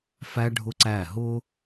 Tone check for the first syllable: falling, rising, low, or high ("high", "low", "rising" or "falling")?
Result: high